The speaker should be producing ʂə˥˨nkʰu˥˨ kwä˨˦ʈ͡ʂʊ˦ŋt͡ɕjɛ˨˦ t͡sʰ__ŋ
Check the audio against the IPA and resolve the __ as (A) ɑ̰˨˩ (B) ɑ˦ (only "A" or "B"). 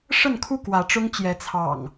A